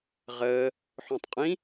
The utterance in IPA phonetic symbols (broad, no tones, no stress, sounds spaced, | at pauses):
ʁ əː | ħ õ tˤ qʼ ĩ